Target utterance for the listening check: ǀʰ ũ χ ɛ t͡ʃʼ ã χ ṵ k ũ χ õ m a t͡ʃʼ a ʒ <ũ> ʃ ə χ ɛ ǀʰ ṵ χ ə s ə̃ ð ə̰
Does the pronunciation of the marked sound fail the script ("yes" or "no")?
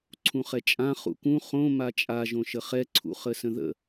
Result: yes